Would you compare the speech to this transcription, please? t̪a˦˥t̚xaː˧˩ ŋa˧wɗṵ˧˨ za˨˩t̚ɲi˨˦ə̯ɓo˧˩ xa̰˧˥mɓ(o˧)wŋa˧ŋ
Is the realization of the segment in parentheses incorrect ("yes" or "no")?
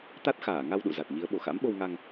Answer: no